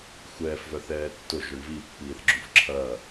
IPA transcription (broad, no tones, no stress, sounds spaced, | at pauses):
xʷ ɛː f v œ θ ɛː tː ʊ ʒ ʊ ɳ v i pː iː θ ɡ͡ǁ u f ǁʰ ɐ